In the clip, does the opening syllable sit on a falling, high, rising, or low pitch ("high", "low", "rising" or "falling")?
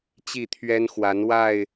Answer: falling